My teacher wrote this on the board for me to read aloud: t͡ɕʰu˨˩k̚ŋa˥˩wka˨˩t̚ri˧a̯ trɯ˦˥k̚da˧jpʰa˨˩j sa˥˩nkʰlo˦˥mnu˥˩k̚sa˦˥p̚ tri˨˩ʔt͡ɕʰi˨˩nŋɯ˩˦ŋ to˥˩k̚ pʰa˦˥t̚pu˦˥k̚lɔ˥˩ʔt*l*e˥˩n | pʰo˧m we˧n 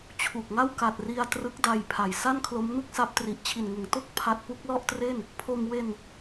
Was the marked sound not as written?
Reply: yes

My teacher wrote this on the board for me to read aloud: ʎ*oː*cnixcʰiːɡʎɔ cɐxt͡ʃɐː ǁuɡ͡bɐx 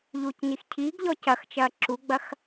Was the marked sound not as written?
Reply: yes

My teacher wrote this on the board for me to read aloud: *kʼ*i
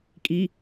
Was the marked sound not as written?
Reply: no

